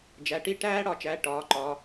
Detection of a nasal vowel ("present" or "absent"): absent